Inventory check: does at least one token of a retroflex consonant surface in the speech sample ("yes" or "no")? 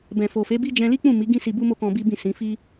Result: no